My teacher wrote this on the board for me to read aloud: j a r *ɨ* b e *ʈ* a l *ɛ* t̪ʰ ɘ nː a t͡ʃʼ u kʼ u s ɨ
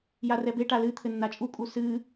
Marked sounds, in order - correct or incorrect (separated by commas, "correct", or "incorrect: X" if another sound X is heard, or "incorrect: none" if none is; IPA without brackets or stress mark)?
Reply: incorrect: ɛ, correct, incorrect: ɨ